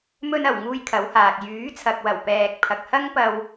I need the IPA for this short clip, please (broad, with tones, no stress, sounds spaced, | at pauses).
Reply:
m ɵ˧ n ɐ˨˩ w ŋ uː˥ j kʰ ɐ˨˥ w h aː˨ k̚ j yː˨˥ t͡sʰ ɐ˨ k̚ w ɐ˨˩ w p ɛː˨ k̚ pʰ ɐ˨ k̚ h ɐ˥ ŋ p ɐ˧ w